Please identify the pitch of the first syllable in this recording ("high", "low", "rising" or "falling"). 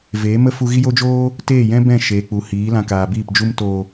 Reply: rising